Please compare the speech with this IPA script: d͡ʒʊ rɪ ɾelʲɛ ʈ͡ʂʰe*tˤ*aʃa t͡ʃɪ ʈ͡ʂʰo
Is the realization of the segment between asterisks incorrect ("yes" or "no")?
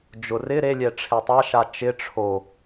no